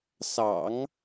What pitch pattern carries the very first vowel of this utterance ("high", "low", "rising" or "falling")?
low